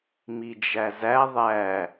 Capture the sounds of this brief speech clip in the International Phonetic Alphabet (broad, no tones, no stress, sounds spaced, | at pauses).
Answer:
m i d͡ʒ æ z æ ðˤ æ